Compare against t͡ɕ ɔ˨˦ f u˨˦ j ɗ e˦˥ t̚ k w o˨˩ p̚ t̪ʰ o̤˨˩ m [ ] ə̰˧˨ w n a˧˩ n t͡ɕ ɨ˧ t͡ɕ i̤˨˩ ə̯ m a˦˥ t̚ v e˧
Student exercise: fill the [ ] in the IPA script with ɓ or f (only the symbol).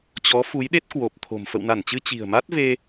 f